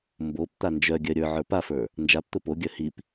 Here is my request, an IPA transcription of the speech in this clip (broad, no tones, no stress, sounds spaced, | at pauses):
m b o p t̪ a n d͡ʒ œ ɡʲ œ ɾʲ ə˞ ʕ ə˞ p a f ə˞ | n d͡ʒ a p t̪ ʊ p o ɡʲ œ h i p